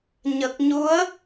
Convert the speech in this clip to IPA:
ɲ ə˨˩ k̚ ɲ u˧˥ ə̯

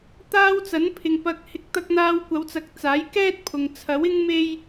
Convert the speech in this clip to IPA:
t̪ aː˧ w t͡s ɐ˨˥ n pʰ ɪ˨ ŋ p ɐ˨ k̚ h ɪ˨˥ k̚ t̪ ɐ˧ k̚ n̪ aː˧ w kʷ ɐ˨˧ w t͡s ɐ˨˥ k̚ t͡s aː˨˥ j k ɛː˥ t̚ pʰ ʊ˨ ŋ t͡sʰ ɐ˨˥ w ɪ˥ ŋ m e˥ j

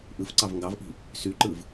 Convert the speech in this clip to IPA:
ʔ ɯ f ǀ ɑ v ŋ ɡ ɑ v ʔ i̤ | s y ǃ ɯ v

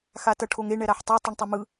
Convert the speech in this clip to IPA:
x a t ʌ ʈʰ o ŋ e ɳ ɛ ɾ a ħ tˤ e tˤ ɯ ɳ tˤ i m ɯ

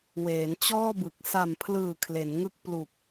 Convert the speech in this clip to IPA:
w eː˩˦ n t͡ɕ ɔː˥˩ b ɯ˨˩ k̚ s a˨˩ m pʰ l ɯː˨˩ kʰ l e˩˦ n ŋ ɯ˥˩ k̚ p l u˨˩ k̚

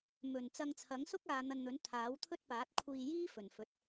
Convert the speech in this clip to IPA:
m ɵ˨˩ n t͡s ɐ˧ ŋ t͡sʰ ɐ˨˥ ŋ s ʊ˥ k̚ aː˨˧ n̪ ɐ˧ n n̪ ɵ˨˥ n t̪ʰ aː˨˥ w t̪ʰ ɵ˥ t̚ p aː˨˥ t̚ kʷʰ iː˧ j iː˥ f ɵ˨˩ n f ɵ˨˥ t̚

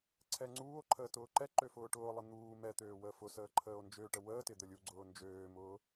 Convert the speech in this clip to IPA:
ǀʰ ɛ ŋ͡ǀ uː o̯ ǃʰ əː t ʊː ǃ ɛ ǃ ø f ʊː ʈ ʊː lˠ ɪ n̪ uː m ɛ t̪ øː w əː f ʊ s əː ǃʰ əː o̯ n d͡ʒ ø ʈ ə w əː t ɪ d̪ ə lʲ u ɡ͡ǀ ʊː n d͡ʒ øː m ʊː

